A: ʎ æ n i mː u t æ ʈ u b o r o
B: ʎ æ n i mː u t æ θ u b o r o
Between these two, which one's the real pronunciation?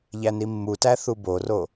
B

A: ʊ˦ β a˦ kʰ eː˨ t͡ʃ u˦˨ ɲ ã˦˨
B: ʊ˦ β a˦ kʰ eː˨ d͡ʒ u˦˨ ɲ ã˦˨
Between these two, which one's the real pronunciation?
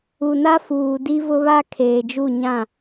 B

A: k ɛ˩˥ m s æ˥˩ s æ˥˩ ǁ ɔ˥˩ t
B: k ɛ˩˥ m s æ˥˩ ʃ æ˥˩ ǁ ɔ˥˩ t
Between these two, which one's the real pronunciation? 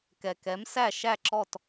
B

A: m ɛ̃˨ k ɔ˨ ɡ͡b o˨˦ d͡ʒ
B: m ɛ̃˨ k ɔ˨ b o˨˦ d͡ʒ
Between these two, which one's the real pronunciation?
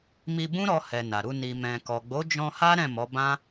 A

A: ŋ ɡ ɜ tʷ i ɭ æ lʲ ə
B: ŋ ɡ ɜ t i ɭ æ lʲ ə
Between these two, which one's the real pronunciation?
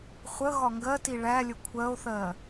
B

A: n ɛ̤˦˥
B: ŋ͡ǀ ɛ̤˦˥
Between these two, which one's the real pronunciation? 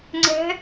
B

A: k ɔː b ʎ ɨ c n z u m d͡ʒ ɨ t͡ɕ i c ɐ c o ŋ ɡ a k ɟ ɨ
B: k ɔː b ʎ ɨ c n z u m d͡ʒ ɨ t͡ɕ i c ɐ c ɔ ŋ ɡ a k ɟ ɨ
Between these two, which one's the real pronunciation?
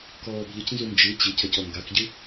B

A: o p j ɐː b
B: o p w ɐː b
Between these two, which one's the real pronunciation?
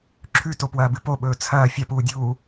B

